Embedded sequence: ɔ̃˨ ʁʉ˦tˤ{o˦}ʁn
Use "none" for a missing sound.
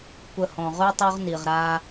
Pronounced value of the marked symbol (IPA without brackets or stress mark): o˦